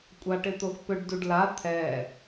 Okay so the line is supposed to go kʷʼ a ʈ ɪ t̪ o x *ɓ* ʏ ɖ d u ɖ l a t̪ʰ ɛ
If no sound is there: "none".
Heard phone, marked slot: p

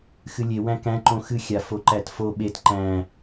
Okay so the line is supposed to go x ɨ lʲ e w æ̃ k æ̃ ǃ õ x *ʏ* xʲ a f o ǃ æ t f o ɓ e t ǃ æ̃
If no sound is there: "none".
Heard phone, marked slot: ɨ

